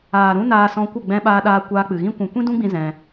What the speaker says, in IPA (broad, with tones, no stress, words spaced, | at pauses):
aː˨ɾũ˦ naː˧sɔ̃˧kʷə˦˨ ɡ͡bɛ̃˧ɓaː˧ɗaː˧ kʷaː˧k͡pɨ˨ɣĩ˦ kʷũ˨kʷĩ˦dũ˦ɡ͡bĩ˧ zɛ̃˧